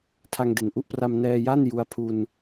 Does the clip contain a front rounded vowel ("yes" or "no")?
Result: no